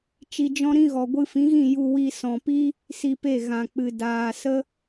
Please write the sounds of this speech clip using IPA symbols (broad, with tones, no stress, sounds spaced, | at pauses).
t͡ʃ i˧ d͡ʒ ɔ̃˦ ɾ ĩ˦ ɣ ɔ˨ ɡʷ ɨ˧ f ĩ˨˦ ɣ ĩ˦˨ j u˧ w i˧ s ɔ̃˨ p i˦ | s i˧ p e˦˨ ɣ ã˨ k͡p ɨ˨ d aː˨ s ə˦